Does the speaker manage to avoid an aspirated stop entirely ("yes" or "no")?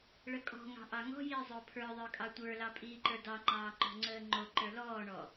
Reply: no